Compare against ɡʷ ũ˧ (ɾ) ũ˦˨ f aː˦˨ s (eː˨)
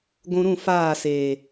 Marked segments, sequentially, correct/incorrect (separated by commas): correct, correct